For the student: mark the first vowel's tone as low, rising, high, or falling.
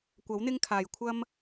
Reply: rising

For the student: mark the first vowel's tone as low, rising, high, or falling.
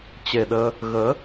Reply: low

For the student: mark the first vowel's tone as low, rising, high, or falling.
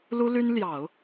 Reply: high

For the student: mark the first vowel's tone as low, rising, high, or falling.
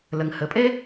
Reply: low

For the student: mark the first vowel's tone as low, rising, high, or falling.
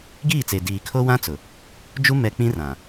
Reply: falling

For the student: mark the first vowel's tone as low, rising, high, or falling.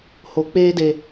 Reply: low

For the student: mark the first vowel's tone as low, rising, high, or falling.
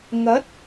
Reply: rising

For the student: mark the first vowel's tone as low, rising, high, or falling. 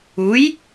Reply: rising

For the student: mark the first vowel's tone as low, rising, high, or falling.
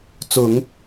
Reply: low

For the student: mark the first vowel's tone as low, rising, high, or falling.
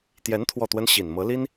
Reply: rising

